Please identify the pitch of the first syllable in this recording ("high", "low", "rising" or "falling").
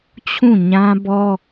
falling